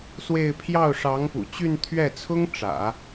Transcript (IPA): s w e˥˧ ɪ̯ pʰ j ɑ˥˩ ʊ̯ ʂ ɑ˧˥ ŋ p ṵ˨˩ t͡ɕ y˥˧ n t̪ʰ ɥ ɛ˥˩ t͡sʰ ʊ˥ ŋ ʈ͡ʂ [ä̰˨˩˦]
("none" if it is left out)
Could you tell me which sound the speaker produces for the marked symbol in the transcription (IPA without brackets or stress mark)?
ä̰˨˩˦